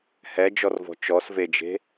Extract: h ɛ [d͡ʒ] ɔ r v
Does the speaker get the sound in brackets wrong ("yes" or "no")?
no